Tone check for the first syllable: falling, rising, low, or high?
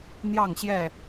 falling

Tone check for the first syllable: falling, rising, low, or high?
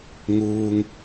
high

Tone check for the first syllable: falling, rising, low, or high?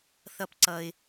high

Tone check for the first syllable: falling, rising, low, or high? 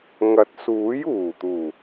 rising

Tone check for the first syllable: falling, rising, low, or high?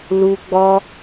high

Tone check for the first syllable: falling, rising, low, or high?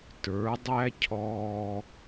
rising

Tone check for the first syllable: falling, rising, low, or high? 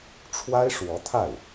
high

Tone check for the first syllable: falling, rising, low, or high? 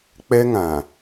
high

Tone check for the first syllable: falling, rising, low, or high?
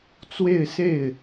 falling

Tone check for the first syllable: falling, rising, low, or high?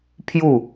falling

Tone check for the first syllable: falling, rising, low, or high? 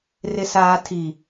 low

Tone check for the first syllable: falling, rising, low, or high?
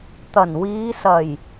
low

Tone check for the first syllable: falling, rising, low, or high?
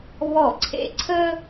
falling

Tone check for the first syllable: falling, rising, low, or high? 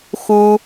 high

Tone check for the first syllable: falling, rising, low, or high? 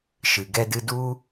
low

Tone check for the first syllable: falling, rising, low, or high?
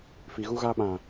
low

